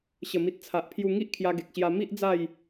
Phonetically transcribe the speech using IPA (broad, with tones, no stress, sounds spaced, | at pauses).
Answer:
ɕ ə˨˩ m i˨ t̚ t͡sʰ a˨ ʔ pʰ j u˧ ŋ i˦ ʔ kʰ j a˧ ɡ e˨ k̚ ɕ j a˧ m i˦ ʔ d͡z a˥˧ j